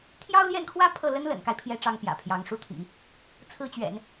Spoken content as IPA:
t̪ʰ j ɑ˥ ʊ̯ l j ɛ˥˩ n kʰ w ä˥ pʰ ɤ˥˩ l ə˥ n l ə̰˨˩ n k a˦ ɪ̯ pʰ j ɛ˧˥ ʈ͡ʂ ɑ˥ ŋ p j ä̰˨˩ pʰ j ɑ˧˥ ŋ ʂ u˥˩ t̪ʰ ḭ˨˩˦ | t͡sʰ ɹ̩˥ t͡ɕ ɥ ɛ̰˨˩˦ n

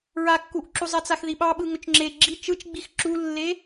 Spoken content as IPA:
ɹ a kː u ʔ ǁ u zˤ ɛ t͡s a x ð i ɓ ɑ ɓ ɯ ŋ ɵ t͡ʃ ŋ͡ǁ e ɡ͡ǁ i t͡ʃ ɯ t͡ʃ ɡ͡b i x ǁ u lː e

